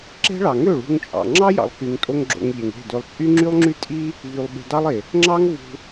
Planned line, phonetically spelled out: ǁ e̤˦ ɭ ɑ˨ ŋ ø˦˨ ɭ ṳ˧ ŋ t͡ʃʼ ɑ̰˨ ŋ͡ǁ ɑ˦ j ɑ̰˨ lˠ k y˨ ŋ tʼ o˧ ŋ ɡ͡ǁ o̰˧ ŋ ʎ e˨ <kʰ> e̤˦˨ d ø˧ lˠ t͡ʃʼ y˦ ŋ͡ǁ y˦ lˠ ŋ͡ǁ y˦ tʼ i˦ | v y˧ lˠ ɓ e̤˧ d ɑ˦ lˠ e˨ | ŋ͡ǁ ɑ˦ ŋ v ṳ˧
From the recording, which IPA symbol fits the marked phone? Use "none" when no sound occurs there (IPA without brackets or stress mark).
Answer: ŋ